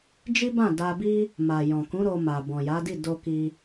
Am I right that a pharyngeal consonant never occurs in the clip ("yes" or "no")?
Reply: yes